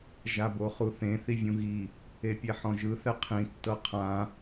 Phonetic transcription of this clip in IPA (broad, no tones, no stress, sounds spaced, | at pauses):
ʒ a b o χ u θ ẽ θ i vʲ ũ ɣ i | e pʲ ɛ ħ ɔ̃ ʒ ɯ θ ɛ qʰ ĩ tː ɤ qʰ ã